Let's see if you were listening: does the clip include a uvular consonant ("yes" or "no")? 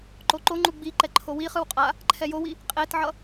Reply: yes